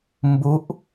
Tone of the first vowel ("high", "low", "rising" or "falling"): rising